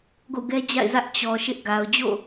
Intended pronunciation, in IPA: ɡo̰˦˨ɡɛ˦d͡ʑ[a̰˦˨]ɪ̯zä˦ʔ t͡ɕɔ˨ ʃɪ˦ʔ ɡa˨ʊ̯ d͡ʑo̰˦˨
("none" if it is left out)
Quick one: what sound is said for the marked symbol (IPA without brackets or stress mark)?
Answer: a̰˦˨